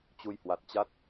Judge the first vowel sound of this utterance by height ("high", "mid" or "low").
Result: high